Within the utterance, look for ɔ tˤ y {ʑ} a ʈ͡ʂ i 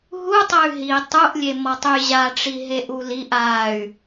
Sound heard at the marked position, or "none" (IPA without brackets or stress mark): ʑ